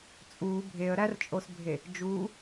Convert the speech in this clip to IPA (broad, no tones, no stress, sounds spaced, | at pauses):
t͡sʼ uː bʱ e ə̯ ɾ æ r t͡ʃʼ o s bʱ e | d͡ʒ uː